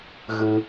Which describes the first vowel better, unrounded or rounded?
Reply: unrounded